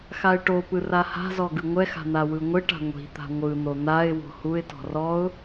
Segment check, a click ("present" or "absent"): absent